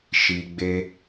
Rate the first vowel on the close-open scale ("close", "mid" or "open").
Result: close